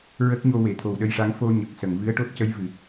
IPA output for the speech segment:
ɹə˦˥k̚ɲo˧ we˨˩˨t̪ʰo˨˩wɗə˧jʂa˧˥ŋ fo˧ ɲə˨˩k̚sə˨˩˨ŋ vɨ˧˥ə̯ʈo˦˥t̚cə˧˥j vɨ˨˩˨

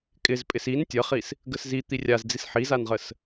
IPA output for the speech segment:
kʼɪzpʼɪs in tʲəχis | ɡəszi t̪irʲazd͡zis ħizanʁəs

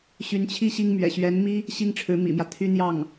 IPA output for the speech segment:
ɕy˧˥nt͡ɕʰi˥˩ ɕi˥ŋmɥɛ̰˨˩ ɕɥɛ˧˥nmi˥ | ɕi˥ŋʈ͡ʂʰɻ̩˧˥mḭ˨˩mjä˦ t̪ʰy˥n̪jɑ˥˩ŋ

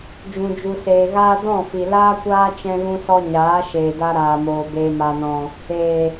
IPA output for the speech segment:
d͡ʒũ˨d͡ʒu˨seː˨ɣaː˧ dɔ̃˦˨fi˨ laː˦kʷaː˦ t͡ʃɛ̃˧ɣũ˧sɔ˧ ɲaː˨˦ʃeː˨da˧ ɾaː˨moː˨ beː˨ma˨nɔ̃˨ | eː˨

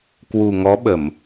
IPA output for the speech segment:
kwu˨˩ŋɔ˨˦ɓə˧˩˨m

